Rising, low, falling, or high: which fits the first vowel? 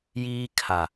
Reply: high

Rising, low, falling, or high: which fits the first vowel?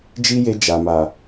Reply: high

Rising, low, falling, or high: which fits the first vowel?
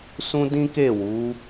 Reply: high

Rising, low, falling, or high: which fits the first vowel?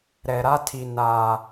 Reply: low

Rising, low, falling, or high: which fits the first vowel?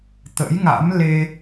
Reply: rising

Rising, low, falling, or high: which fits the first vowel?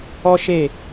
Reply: high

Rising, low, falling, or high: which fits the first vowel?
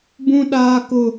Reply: high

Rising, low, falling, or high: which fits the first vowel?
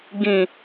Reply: low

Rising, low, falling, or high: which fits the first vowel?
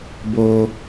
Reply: high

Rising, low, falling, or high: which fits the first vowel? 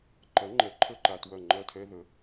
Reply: rising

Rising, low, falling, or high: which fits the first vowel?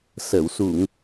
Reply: low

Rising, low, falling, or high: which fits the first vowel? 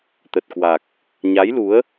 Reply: low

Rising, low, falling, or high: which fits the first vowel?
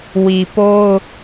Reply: low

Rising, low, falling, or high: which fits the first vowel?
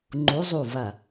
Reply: rising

